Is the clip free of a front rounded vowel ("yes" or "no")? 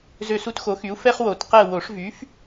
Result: no